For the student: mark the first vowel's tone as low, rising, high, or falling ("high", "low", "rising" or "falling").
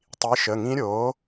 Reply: rising